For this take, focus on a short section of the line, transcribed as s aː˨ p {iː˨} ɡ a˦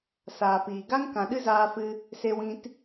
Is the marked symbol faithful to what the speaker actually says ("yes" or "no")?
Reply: yes